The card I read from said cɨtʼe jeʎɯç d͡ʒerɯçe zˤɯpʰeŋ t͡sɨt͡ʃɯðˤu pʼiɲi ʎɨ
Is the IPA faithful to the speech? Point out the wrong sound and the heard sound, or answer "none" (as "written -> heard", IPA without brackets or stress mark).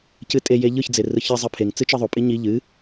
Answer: d͡ʒ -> d͡z